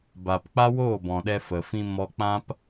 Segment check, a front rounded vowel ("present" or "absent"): absent